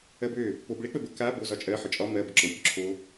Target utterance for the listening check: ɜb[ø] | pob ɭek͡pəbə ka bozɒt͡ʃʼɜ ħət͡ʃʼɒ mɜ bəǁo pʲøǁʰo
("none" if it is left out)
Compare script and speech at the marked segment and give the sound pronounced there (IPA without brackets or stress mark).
ø